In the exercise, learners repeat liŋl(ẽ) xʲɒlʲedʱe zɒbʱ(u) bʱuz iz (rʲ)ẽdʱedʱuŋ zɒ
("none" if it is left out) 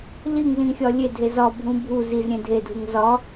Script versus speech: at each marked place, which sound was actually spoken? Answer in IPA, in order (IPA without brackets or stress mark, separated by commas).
ĩ, ũ, ɾʲ